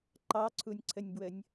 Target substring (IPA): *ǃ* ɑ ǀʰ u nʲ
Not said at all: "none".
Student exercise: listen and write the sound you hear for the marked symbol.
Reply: ǃ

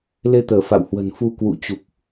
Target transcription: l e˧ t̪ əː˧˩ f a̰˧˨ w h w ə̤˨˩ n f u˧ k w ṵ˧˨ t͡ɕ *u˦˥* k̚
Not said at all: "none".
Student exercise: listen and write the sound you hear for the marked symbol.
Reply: u˨˩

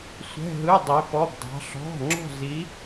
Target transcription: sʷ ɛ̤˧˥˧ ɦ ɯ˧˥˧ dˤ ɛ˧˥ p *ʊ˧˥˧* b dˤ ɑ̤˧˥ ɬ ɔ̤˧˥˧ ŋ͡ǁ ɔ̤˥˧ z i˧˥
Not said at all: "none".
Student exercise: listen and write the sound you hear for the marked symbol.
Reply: ɔ˧˥˧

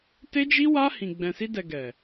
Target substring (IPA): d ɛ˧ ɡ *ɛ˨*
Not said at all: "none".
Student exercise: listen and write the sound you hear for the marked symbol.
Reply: ɛ˨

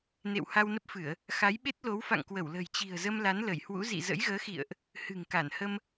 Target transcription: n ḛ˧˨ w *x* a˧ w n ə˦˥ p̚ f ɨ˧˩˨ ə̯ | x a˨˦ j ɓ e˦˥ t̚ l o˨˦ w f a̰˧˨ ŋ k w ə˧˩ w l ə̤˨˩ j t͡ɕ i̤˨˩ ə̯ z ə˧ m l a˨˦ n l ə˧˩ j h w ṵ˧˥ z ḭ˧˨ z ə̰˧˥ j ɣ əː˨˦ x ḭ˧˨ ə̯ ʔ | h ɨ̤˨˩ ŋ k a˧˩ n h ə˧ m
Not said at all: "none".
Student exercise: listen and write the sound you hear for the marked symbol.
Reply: h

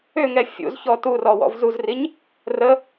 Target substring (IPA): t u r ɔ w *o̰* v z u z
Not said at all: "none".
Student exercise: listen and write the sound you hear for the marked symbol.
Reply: ɔ̰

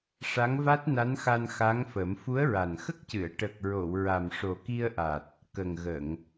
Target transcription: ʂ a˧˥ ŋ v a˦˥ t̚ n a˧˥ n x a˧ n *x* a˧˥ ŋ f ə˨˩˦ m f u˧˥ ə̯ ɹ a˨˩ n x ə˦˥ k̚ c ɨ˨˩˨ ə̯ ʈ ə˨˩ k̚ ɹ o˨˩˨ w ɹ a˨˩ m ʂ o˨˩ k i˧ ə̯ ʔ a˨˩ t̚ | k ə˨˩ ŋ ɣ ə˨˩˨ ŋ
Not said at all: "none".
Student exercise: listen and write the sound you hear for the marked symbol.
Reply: x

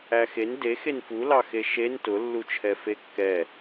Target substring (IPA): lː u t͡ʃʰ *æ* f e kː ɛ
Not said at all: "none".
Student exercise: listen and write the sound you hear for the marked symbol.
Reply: ɛ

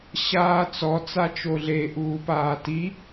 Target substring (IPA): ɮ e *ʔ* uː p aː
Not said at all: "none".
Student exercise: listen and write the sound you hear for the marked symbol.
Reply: ʔ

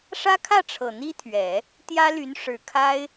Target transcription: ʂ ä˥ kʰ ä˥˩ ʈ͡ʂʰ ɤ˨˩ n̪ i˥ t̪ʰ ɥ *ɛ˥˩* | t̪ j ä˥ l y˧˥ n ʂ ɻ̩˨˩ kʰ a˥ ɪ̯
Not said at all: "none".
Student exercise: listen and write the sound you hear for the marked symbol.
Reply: ɛ˨˩˦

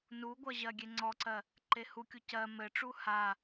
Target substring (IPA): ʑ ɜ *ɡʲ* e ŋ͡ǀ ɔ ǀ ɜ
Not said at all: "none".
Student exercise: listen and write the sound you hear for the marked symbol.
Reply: ɡʲ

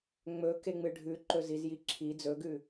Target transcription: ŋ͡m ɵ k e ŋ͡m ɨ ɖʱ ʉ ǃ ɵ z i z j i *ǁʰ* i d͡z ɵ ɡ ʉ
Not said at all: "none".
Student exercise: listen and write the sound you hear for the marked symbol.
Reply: ǁʰ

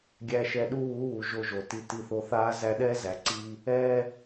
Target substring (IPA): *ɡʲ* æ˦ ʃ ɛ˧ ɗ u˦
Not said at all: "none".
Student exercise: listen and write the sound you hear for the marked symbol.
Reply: ɡʲ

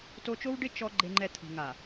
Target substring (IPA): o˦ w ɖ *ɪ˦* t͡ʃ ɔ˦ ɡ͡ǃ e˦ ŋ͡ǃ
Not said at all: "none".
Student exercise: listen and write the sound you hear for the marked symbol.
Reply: ɪ˦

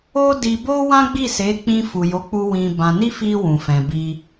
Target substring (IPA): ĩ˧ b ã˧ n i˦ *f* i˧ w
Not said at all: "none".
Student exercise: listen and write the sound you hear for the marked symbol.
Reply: f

